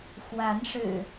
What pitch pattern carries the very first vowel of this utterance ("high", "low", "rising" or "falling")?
rising